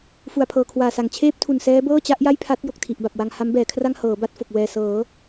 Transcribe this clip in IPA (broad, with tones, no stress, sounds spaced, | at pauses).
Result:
f u˨˩ a̯ pʰ ɤː˨˩ kʰ w aː˨˩ s a˨˩ ŋ t͡ɕʰ eː˥˩ p̚ tʰ u˨˩ n s ɛː˦˥ b ɤː˥˩ t͡ɕ a˦˥ ʔ j a˥˩ j pʰ a˦˥ t̚ j o˨˩ k̚ tʰ i˨˩ ʔ b a˨˩ p̚ w a˧ ŋ h a˦˥ m b ɛː˩˦ kʰ r a˥˩ ŋ h ɤː˩˦ b a˥˩ t̚ f o˨˩ k̚ w ɛː˨˩ s ɤː˩˦